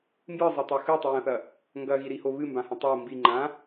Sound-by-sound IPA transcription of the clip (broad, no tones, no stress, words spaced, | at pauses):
mbɨzˤetˤo xɨtˤɨjɐ̃θɐ | ŋɡɐɣiɾiho βɨmbãhɐ̃ tˤo mbiŋ͡ǃã